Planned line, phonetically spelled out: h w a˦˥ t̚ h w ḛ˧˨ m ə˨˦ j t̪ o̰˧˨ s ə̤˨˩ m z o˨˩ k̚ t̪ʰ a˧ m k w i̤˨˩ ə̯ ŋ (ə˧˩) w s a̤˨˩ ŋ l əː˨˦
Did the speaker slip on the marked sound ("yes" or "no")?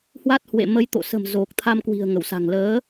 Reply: no